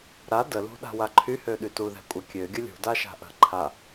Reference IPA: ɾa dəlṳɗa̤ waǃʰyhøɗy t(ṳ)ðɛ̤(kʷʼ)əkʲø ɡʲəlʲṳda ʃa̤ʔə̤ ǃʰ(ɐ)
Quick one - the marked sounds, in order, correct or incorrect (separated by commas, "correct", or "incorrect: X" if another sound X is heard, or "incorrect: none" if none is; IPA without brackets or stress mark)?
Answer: incorrect: u, correct, incorrect: a